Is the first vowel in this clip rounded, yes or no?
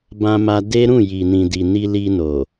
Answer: no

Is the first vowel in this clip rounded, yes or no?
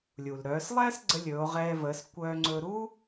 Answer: yes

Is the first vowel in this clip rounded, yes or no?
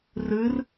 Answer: no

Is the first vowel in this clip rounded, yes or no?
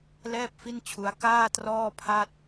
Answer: no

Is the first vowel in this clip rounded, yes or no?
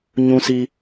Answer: yes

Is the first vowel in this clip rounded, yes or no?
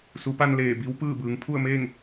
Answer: yes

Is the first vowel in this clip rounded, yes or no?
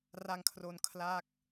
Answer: no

